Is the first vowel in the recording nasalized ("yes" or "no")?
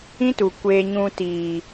yes